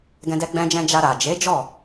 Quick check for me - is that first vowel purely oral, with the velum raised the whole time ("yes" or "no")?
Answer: no